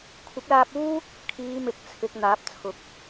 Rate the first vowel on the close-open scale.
close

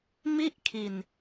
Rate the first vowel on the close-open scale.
close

